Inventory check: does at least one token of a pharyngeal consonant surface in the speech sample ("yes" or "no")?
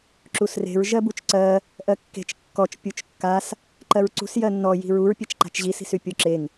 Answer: no